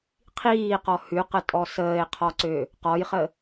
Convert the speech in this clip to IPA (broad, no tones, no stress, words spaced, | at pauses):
qʰiːqɔ hʉqətʼɔ səːe̯qʰɔǀø | qɔjχə